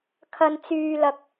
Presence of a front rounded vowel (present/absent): present